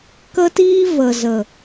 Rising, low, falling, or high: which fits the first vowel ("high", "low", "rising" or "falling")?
high